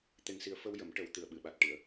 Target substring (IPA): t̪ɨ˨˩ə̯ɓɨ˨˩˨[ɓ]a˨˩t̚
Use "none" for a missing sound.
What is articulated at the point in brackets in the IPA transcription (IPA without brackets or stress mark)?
ɓ